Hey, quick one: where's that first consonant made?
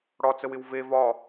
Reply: retroflex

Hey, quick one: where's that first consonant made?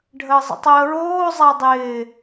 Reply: retroflex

